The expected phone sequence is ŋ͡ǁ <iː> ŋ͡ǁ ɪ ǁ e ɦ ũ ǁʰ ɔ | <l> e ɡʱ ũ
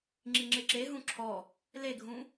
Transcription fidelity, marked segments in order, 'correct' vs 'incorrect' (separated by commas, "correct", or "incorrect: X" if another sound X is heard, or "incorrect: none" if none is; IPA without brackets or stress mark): incorrect: i, correct